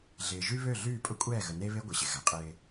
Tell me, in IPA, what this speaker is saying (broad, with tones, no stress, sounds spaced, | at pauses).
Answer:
ɮ ɪː˨ ʒ y˦ β ø˦˨ ɮ yː˦˨ pʼ ʊ˦ kʷʼ ɛː˦˨ ɣ ə˨ n e˦ β e˦ ɡʷ ɪ˨ ɕ ɪ˨ ɣ a˨ qʼ ɪː˦